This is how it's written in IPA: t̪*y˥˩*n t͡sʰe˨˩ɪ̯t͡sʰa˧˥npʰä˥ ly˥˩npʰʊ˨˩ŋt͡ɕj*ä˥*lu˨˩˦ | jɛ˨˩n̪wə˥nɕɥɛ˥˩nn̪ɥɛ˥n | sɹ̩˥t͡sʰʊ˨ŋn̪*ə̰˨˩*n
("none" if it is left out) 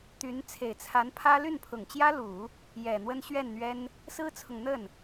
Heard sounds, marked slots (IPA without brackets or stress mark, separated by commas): y˧˥, ä˥, ə˥˩